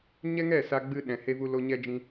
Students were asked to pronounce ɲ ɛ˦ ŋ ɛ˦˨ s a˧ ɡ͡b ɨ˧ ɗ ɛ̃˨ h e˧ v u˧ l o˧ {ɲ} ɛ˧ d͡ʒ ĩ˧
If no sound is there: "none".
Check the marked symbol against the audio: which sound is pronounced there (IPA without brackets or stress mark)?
ɲ